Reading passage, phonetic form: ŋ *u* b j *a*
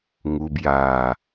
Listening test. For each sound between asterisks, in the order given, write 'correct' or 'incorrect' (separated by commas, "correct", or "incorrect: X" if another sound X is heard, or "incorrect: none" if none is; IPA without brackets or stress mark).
correct, correct